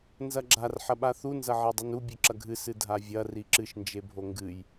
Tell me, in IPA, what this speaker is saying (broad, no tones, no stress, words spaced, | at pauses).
nzɐɡ͡ǁar ħɐɓaθu nzɐʕedˤinu bʲʉǁɐɡʱɨ sɨdʱavʲɐ riǁɨʃ nd͡ʒebʱoŋɡɨj